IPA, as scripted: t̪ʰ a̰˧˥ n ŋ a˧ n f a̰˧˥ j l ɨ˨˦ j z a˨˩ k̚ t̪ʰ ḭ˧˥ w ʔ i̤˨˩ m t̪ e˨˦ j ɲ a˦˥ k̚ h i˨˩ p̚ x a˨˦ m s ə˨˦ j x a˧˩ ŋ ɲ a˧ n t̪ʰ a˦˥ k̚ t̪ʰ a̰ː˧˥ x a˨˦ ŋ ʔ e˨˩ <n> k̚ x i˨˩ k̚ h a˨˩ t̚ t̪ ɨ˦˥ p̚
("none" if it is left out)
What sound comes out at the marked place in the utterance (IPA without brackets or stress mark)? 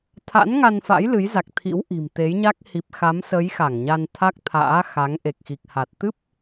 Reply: none